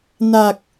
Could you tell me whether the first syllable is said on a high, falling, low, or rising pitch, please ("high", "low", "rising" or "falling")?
low